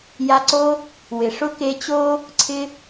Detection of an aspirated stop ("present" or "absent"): present